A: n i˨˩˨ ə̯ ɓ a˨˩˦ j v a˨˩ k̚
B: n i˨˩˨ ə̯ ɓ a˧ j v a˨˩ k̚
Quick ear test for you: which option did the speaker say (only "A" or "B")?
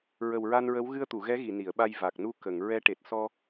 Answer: B